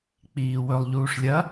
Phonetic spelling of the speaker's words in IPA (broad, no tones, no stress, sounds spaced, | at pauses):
k͡p iː w ɵ lˠ ʎ uː ʂ lʲ ɐ